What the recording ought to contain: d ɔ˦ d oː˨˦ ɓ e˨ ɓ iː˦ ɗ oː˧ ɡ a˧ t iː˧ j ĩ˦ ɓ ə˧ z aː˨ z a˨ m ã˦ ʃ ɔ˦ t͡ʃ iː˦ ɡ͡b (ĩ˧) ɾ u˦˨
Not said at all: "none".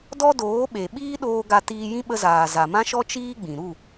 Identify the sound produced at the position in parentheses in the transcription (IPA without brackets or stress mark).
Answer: ĩ˨